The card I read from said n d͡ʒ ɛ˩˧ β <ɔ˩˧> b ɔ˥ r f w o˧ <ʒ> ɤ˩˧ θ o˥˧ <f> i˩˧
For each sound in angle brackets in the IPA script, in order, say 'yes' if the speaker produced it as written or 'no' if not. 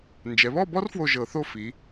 no, yes, yes

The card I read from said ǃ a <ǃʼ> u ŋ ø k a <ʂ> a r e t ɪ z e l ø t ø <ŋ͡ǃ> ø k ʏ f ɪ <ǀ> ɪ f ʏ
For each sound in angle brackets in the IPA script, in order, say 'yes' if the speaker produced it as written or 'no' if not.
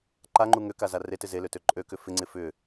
no, no, no, no

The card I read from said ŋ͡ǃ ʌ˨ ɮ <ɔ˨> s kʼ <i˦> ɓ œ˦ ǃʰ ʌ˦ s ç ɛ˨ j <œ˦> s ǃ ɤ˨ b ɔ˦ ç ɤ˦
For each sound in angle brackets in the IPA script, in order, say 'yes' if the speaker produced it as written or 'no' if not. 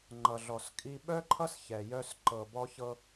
yes, yes, yes

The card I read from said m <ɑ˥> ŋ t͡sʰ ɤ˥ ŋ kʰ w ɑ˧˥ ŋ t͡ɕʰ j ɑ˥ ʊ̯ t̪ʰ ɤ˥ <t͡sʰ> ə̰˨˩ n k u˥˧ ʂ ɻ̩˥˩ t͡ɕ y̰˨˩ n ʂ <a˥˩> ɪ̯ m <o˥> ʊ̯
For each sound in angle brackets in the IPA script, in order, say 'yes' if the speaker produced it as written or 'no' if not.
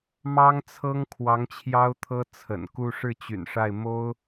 yes, yes, yes, yes

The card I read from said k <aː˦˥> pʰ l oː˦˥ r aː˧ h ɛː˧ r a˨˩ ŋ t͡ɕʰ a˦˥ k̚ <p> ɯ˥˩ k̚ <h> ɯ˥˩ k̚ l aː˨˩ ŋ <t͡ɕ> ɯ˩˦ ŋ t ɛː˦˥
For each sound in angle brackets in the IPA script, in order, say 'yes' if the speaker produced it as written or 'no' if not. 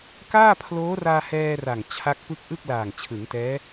no, yes, no, no

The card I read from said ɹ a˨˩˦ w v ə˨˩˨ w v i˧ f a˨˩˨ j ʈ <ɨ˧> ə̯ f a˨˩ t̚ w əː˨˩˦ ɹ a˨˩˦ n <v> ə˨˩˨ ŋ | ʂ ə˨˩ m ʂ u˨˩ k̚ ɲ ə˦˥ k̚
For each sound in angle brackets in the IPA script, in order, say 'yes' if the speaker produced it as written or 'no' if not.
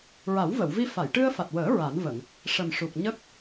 yes, yes

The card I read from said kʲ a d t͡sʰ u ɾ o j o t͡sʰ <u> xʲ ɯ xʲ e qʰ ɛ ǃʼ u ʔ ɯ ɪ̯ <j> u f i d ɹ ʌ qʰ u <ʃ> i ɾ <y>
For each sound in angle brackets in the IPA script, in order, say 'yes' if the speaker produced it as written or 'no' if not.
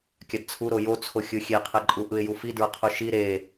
no, yes, yes, no

